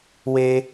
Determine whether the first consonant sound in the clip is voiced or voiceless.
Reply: voiced